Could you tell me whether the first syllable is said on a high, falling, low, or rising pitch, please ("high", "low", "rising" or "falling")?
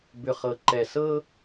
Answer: low